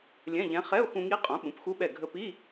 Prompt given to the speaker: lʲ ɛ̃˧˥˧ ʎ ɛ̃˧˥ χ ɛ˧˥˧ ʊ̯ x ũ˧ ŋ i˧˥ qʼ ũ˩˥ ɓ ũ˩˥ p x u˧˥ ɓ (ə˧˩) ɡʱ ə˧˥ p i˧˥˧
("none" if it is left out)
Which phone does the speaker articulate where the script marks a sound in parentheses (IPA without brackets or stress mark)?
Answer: ɛ˧˩